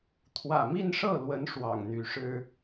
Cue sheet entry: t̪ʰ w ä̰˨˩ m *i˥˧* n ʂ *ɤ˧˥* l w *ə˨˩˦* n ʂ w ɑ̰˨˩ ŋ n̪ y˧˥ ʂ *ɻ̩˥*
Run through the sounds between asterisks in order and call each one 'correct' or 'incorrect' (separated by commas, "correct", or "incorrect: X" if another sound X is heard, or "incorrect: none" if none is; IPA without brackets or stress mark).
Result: correct, incorrect: ɤ˥˩, incorrect: ə˧˥, correct